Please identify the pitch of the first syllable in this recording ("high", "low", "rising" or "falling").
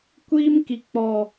high